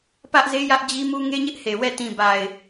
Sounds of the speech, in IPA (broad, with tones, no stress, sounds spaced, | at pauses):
p ä˦ ʔ z e˦ j ä˦ ʔ d͡ʑ i˦ m u˦ ŋ e˦ ɲ ɪ˦ ʔ h e˨ w ɛ˦˨ t ĩ˨ b a˨ ɪ̯